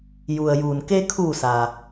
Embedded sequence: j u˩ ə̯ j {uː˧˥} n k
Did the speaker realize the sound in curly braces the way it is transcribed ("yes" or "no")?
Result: no